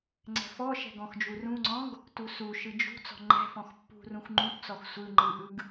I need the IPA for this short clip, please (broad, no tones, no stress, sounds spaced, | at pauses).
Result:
ŋ͡ǀ ɛ̤ f ɔ ʃ ɛ̤ ɡ ɔ̃ x d͡ʒ u r ũ ŋ͡ǀ ɔ̃ ɡ | t u s u ʃ ɯ d͡ʒ ṳ t͡s ɔ̤ ŋ͡ǃ ɛ̤ f ɔ̃ x pː ṳ r ũ x ŋ͡ǃ ũ t t͡s ɔ x sʷ ɯ ŋ͡ǃ ɯ ʔ ɯ ɡ